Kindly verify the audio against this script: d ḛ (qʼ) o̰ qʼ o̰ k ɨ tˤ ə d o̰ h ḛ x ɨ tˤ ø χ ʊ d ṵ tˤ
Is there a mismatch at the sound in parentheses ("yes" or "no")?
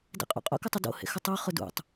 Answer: no